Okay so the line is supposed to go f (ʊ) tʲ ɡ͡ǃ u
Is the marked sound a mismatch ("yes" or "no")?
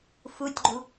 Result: yes